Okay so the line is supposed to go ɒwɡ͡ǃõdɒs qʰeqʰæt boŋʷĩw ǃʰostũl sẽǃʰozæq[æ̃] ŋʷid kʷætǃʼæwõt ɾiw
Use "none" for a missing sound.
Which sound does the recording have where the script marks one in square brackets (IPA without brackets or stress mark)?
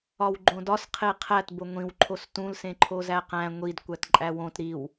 æ̃